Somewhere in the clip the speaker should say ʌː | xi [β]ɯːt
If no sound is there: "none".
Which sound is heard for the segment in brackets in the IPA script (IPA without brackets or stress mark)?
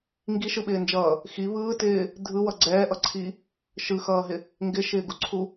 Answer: β